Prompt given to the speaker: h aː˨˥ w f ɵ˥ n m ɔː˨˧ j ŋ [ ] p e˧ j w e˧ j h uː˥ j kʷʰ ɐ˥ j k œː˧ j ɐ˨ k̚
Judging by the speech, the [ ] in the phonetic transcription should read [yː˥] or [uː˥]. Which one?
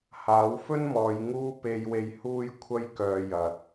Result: uː˥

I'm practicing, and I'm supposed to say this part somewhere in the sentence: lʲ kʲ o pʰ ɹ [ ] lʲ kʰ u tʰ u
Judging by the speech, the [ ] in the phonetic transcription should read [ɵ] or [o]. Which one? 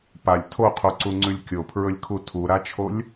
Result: ɵ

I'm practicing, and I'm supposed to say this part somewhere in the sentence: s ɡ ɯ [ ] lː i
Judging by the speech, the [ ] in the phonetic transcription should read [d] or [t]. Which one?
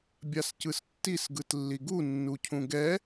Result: t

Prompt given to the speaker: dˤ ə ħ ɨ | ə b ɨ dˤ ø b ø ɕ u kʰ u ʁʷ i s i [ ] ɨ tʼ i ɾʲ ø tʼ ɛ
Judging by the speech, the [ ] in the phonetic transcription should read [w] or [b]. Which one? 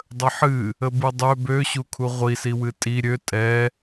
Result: w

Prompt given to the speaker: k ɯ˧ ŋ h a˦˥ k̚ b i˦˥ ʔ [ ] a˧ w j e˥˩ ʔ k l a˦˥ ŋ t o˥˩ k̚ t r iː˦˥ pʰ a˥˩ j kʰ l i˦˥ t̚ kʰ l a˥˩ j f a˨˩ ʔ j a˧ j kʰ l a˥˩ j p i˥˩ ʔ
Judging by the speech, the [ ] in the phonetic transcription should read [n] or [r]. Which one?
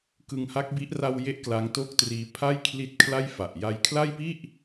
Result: r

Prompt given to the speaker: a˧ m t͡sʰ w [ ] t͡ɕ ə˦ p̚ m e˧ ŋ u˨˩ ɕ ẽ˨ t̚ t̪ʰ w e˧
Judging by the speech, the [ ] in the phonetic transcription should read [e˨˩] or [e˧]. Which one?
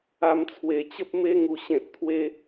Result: e˨˩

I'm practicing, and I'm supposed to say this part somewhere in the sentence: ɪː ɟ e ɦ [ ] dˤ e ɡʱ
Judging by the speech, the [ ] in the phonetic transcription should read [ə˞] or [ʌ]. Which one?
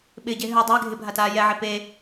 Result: ə˞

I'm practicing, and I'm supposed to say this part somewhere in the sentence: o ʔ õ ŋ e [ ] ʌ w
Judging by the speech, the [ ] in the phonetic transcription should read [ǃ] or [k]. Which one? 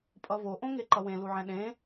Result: ǃ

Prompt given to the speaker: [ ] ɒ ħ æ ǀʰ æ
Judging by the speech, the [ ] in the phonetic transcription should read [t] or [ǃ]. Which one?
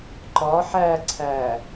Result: ǃ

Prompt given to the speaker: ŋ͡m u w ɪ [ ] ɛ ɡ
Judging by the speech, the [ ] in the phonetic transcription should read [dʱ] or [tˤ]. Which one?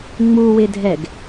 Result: dʱ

